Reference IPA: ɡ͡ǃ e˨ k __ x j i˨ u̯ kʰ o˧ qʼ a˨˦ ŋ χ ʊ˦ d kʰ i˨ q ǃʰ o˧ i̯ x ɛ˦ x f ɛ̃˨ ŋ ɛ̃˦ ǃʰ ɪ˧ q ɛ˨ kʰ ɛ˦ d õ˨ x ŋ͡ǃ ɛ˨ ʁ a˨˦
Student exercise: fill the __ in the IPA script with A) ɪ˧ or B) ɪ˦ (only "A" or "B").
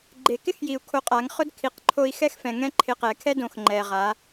B